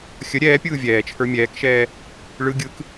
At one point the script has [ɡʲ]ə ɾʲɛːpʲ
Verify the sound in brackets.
incorrect: xʲ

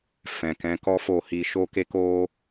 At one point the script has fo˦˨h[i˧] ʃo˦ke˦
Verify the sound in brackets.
correct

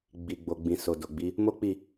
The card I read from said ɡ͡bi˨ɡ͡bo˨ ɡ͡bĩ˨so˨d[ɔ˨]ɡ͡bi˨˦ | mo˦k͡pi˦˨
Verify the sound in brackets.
incorrect: o˨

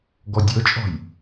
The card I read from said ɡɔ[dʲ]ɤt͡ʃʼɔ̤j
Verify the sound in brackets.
correct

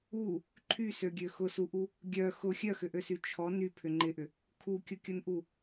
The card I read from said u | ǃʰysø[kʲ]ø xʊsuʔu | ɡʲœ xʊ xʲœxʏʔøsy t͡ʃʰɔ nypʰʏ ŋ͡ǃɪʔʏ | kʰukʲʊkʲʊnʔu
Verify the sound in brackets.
incorrect: ɡʲ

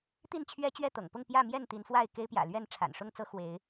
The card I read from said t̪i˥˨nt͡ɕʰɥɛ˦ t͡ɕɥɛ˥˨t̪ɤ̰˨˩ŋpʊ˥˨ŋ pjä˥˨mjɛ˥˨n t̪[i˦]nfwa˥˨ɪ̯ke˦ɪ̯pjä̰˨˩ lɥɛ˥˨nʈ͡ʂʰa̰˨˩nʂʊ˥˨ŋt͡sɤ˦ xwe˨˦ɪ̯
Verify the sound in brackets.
incorrect: i˨˦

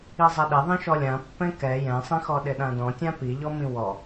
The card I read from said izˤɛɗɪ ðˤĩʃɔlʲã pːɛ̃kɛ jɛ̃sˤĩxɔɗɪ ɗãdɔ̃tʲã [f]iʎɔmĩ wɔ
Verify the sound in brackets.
incorrect: p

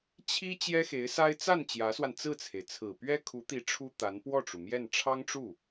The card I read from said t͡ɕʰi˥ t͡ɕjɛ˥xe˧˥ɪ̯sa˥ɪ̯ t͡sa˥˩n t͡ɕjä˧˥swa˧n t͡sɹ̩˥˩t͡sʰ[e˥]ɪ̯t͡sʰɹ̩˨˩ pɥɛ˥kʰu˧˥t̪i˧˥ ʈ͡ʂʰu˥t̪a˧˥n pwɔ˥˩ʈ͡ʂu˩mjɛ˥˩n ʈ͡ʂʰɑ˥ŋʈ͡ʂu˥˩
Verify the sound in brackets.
incorrect: e˩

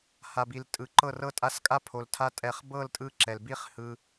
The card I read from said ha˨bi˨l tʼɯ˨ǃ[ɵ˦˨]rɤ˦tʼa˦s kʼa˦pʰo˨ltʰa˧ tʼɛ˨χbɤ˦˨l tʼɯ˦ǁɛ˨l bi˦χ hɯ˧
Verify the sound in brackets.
incorrect: ɤ˦˨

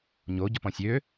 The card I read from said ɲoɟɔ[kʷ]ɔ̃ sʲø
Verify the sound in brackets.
incorrect: p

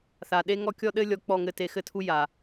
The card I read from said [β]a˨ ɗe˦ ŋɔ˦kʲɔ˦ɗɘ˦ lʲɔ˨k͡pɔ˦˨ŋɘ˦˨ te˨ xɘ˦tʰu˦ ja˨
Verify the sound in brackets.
incorrect: θ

